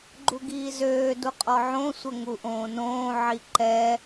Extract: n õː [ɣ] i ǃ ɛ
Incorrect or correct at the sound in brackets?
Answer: incorrect: ʕ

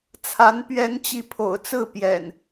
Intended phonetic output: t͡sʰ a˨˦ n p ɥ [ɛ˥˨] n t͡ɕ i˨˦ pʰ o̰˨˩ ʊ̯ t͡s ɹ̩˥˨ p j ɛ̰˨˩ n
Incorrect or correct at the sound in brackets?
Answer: incorrect: ɛ˨˦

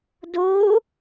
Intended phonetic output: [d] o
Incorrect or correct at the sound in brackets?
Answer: correct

